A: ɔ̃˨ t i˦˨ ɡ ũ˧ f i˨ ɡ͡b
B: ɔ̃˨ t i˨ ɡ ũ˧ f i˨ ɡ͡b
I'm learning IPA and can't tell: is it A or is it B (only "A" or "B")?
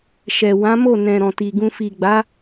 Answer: B